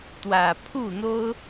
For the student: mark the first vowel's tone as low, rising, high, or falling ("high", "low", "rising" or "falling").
low